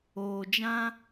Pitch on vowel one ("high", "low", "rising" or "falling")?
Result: low